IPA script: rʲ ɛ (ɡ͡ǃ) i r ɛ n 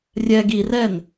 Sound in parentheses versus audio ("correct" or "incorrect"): incorrect